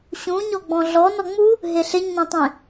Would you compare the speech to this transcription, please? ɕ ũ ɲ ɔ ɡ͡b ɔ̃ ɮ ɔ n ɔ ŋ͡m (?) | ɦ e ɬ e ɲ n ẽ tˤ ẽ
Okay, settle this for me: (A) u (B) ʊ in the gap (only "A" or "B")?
A